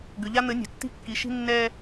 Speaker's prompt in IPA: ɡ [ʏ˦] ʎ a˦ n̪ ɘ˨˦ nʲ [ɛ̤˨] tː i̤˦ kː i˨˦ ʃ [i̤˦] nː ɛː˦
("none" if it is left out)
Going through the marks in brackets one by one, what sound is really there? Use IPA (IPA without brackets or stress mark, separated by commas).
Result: ʏ˨, ɛ̤˨, i̤˦